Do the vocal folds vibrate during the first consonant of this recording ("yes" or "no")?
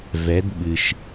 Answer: yes